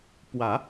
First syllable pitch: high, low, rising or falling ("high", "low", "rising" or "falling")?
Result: low